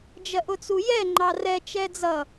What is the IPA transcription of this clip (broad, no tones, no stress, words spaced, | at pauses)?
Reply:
d͡ʒɜʔʊt͡sujɛ ŋ͡ǃɑrɛ t͡ʃɛd͡zʌ